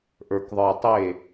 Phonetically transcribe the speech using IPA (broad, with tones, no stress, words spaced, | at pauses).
ʔə˞˨kðˤə˞˨tˤe˦˨